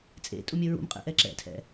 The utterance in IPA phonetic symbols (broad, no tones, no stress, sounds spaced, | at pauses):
t͡sʼ ḛ tʼ u mʲ ɘ ɹ ṵ m qʼ ḛ ʔ ɛ ǁ ɛ̰ tʰ ɛ̰